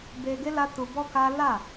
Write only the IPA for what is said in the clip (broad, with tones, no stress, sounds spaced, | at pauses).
b e˧ ɡ e˦ l a˦ t u˧ b ɔ˦ k a˦ l a˦˨